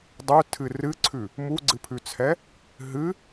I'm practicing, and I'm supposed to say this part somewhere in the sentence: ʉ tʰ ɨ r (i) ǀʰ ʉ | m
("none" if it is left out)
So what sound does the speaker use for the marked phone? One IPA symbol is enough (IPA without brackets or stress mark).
ɨ